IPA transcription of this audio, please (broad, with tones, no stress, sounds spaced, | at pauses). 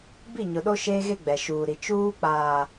b i˦˨ ɲ ʊ˨ ɗ o˦ ʃ eː˦ ɣ e˦ ɡ͡b ɛ˨ ʃ uː˨ ɾ i˨ t͡ʃ uː˦ k͡p aː˨